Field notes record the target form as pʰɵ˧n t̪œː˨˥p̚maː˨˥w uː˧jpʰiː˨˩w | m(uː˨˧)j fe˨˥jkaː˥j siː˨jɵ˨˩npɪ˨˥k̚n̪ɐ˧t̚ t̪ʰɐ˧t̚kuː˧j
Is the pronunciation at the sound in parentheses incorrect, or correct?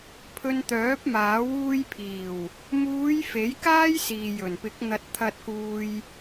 correct